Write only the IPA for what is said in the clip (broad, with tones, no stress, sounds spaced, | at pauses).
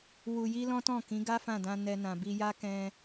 w u˧ j i˦ l ɔ̃˦ t ɔ̃˦˨ k ĩ˨˦ ɡ a˦ f ã˦˨ d ã˧ n ɛ˧ n ã˨ b i˧ j a˦ k ɛ̃˧